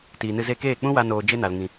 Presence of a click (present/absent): absent